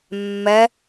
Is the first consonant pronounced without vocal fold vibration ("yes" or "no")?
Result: no